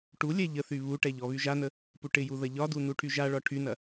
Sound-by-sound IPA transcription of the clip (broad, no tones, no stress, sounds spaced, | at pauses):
ʈ u lʲ ɛ ʎ ə θ y β u ʈ ɛ ʎ ɔ β y ʒ a n ə | p u ʈ ɪ j u ð ɐ ʎ ɒ d u n u ʈʰ y ʒ a ɭ ɒ ʈʰ y n ɐ